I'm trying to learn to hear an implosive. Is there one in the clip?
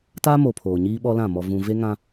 yes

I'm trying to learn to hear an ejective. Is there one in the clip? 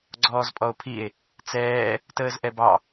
yes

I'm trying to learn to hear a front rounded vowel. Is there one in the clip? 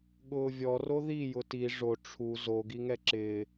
no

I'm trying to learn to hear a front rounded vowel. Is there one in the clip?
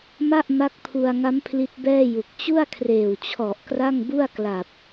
no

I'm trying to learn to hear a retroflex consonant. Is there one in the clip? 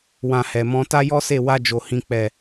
no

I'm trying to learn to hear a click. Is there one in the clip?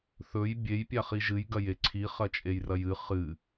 yes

